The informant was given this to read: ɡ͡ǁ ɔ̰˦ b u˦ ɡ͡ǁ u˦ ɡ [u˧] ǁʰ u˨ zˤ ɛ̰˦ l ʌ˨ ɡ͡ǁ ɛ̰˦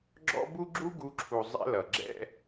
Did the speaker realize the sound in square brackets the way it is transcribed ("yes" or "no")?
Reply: yes